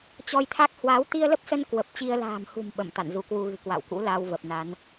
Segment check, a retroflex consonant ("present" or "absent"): absent